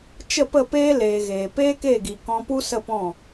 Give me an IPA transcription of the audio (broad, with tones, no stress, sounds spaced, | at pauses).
t͡ʃ ə˦˨ p ə˦˨ p eː˦ l eː˨ ɣ eː˨ p eː˦ k eː˦˨ ɡ i˨ k ɔ̃˧ p u˦ s ə˦˨ p ɔ̃˦˨